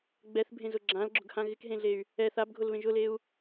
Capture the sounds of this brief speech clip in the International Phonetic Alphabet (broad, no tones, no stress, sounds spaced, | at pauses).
ɡ͡b ɛ θ bʱ ẽ z ʊ ɡ͡ǁ ã l ɡ͡ǁ ʊ ɡ h ã ɣ ɪ k ɦ ẽ ɮ e y̯ | ɛ θ a b ɡʱ ʊ l β ẽ ʒ ʊ l e u̯